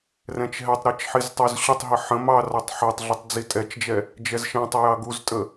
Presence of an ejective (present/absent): present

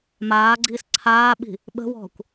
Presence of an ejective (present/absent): absent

